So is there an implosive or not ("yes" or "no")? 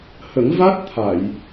no